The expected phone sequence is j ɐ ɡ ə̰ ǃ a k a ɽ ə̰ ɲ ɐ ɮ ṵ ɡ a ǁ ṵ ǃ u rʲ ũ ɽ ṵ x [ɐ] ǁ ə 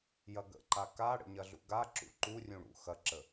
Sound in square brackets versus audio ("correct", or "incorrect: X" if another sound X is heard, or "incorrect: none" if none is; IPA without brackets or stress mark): correct